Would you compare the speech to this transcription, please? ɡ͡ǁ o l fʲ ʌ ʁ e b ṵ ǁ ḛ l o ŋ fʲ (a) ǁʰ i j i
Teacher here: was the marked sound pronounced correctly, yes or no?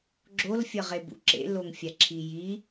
yes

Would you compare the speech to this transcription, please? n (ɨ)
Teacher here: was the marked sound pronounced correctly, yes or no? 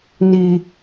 no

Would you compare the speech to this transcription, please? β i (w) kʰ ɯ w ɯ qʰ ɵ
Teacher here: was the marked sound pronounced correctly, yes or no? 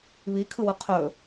no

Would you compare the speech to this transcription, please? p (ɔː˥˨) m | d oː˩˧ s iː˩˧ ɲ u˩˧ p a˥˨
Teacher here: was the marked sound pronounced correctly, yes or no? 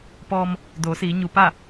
no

